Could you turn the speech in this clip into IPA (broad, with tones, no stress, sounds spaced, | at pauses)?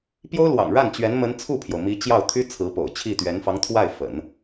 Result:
p j o˥ ʊ̯ l w ɑ̰˨˩ ŋ ɻ a˥˩ n t͡ɕ ɥ ɛ˧˥ n m ə˧˥ n t͡sʰ u˥˩ pʰ j o˩ ʊ̯ m i˧˥ t͡ɕ j ɑ˥˩ ʊ̯ t̪ʰ y˥ t͡sʰ ɹ̩˧˥ p o̰˨˩ ʊ̯ t͡ɕʰ i˥˩ t̪ ɥ ɛ˧˥ n f ɑ˧˥ ŋ t̪ʰ w a˥˩ ɪ̯ f ə̰˨˩˦ n